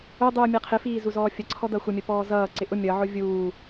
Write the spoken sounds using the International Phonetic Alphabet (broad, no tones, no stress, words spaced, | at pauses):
ʊdˤuː mʲɛqʰɪfiː zuzɔːfʲəǀʰɔ dʌxʷəmʲə pɔːzʌːǀɪ ʔʊ mʲʌʕʊ vʲuː